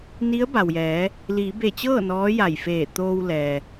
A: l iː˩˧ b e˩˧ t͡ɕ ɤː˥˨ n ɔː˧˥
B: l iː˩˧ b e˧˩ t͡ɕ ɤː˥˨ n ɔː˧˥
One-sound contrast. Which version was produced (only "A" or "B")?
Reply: B